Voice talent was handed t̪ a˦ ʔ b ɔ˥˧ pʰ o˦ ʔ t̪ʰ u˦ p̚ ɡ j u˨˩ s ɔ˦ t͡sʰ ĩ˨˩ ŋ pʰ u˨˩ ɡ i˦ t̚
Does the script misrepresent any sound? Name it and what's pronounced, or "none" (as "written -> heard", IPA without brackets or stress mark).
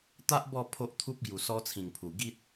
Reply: none